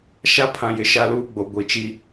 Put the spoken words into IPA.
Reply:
ʃ a˦ pʰ ã˨ j ɪ˨ ʃ a˦ l uː˦ ɡ͡b o˨ ɡʷ i˨ t͡ʃ i˦

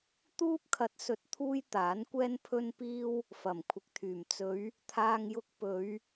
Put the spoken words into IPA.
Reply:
t̪ uː˥ p̚ kʰ ɐ˨˥ t̚ s ɵ˨˥ t̚ t̪ʰ uː˥ j t̪ aː˨˥ n kʷ ɛː˥ n pʰ ɵ˧ n p iː˧ w | f ɐ˨˩ m kʷʰ ɪ˨ k̚ t̪ʰ yː˨˩ m t͡s ɵ˨˧ ɥ | t̪ʰ aː˧ ŋ j ʊ˧ k̚ p ɵ˨˧ ɥ

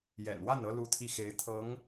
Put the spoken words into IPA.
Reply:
j ɛ̰˨˩ n w a˥˩ n ɤ˥ l u˥˧ t̪ʰ i˥˩ x e˧˥ ɪ̯ t̪ʰ ɤ˧˥ ŋ

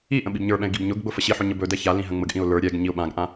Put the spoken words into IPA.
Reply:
i ʔ ə̃ ɓ i b ɲ ə˞ ɓ ɛ̃ ɪ̯ ɡ i b ɲ ʊ ɡ ɡ͡b ʊ f ə ɕ i ħ ʊ ɲ ə b ɵ d ɛ ç a l ĩ ɦ ə̃ ŋ͡m ə ɡ ʔ ĩ ʊ̯ l ə˞ ɾʲ ɛ ɡ ɲ i ʊ̯ ɓ ã ɡ ʔ ã

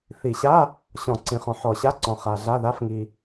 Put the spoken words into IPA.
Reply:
θ i˨˩˦ ɕ a˧˥˧ | ɕ ɔ̃˨˩˦ ǀ ĩ˨ χ ɔ̃˨ ħ ɔ˨˩˦ ɕ a˧˥˧ ǀ ɔ̃˨ χ a˨ ɮ a˧˥˧ ð a˧˥˧ f ŋ i˨

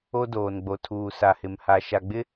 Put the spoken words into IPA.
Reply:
o˦ d oː˨ n ɡ͡b o˨ tʰ uː˨ s a˨ h ɪ˨ m h a˨ ʃ a˨ ɡ͡b ɪ˦

